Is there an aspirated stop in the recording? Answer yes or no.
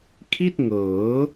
yes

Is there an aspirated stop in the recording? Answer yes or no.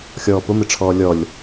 yes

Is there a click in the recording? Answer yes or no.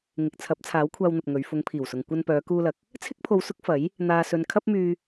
no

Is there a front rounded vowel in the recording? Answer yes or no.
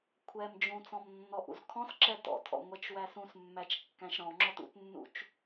no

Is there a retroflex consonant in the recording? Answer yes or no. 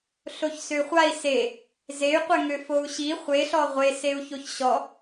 no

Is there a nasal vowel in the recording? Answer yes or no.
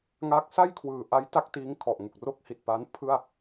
no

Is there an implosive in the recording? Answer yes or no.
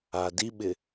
yes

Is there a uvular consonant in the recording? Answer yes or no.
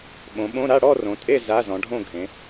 no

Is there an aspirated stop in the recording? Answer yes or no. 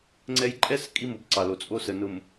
no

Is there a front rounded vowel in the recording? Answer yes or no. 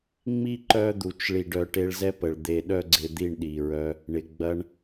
yes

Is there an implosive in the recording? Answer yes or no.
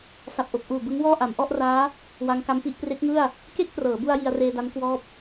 no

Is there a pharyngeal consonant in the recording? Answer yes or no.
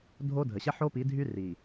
yes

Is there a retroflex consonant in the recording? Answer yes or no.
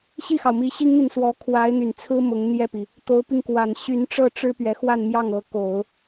yes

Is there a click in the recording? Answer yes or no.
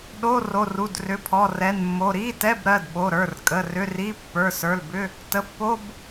no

